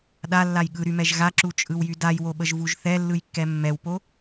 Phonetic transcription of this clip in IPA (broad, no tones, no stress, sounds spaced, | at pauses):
ɗ a lː a j ɠ ɯ ɾ y m ɛ ʒ ɣ a ǁ u t͡ʃʼ ɯ w j y d a j w o ɓ ə ʒ v u ʒ θ ɛ lː ɯ j kː ɛ mː ɛ w p o